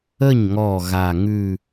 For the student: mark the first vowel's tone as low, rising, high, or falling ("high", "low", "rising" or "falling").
falling